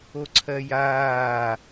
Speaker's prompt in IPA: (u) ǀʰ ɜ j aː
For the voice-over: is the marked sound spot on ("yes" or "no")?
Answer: no